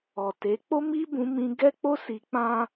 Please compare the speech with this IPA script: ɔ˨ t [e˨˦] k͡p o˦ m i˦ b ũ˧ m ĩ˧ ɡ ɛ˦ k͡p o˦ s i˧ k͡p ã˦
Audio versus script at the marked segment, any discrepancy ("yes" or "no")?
no